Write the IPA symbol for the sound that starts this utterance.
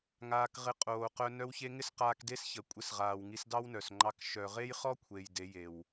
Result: ŋ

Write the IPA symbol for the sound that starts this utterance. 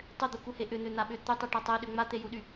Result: tˤ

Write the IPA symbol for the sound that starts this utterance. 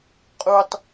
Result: qʼ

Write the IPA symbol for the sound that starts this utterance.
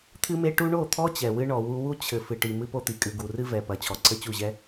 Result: t̪ʰ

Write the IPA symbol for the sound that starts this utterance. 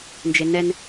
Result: n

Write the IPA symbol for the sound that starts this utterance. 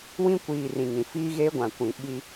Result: w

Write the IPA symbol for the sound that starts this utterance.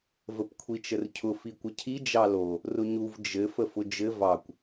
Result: v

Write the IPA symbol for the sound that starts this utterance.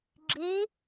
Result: ɡ͡ǁ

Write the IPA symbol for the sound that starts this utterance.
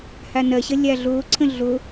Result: h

